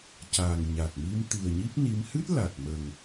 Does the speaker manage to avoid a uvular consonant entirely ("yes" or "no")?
yes